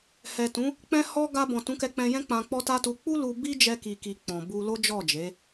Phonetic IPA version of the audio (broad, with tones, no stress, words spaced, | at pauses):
hɛ˨tũ˨˦ | k͡pɛ̃˧hɔ˧ ɡa˧bɔ̃˨ tũ˨˦kɛ˧k͡pɛ̃˧jɛ̃˦ k͡pã˧k͡pɔ˦ta˦tu˧ k͡pu˦lu˧ bi˦d͡ʒɛ˧ki˨ki˨ k͡pɔ̃˨bu˧ lo˦d͡ʒɔ˦˨d͡ʒe˨˦